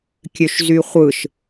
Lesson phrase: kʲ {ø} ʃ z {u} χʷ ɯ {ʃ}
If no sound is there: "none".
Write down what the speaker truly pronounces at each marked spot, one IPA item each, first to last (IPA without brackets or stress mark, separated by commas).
ø, y, ʃ